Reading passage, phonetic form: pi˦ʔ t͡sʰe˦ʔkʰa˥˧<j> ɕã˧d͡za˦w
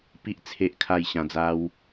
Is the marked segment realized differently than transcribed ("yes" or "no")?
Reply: no